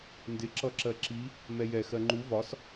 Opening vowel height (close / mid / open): close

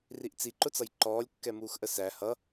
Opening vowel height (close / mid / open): close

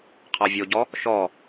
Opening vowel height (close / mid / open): open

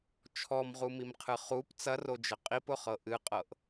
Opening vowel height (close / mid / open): mid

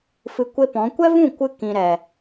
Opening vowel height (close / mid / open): close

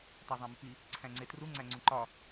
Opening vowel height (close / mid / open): open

